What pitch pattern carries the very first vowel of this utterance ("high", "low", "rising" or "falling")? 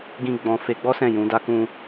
high